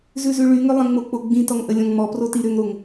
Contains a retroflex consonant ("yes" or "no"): yes